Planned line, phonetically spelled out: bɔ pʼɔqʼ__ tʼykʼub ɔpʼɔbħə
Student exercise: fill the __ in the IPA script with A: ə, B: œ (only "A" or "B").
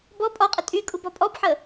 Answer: A